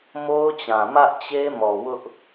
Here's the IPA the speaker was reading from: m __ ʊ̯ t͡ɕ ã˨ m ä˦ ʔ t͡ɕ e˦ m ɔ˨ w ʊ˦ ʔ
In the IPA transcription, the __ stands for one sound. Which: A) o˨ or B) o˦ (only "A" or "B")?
B